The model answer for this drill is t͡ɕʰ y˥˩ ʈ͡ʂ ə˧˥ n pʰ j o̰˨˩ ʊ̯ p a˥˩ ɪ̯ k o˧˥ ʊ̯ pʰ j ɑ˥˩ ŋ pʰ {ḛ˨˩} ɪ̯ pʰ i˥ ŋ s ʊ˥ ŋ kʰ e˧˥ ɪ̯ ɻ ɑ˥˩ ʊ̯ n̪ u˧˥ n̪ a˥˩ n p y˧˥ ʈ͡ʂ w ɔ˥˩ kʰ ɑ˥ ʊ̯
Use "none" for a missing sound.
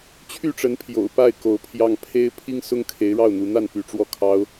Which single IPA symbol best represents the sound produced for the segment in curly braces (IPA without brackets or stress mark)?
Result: e˥